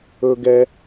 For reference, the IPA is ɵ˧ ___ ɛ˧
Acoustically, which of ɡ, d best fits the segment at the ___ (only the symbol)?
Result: ɡ